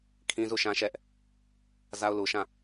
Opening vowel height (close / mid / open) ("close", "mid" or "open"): close